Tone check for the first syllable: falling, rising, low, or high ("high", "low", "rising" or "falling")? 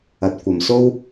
rising